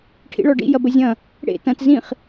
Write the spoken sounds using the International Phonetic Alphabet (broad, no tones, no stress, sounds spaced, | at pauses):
ʈʰ ḭ ɭ ɔ ɖ ḭ j ɐ b ə zʲ ɐ̃ | ɽ ḛ t ɐ̃ t z ĩ χ